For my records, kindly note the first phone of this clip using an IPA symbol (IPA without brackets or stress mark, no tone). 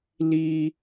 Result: l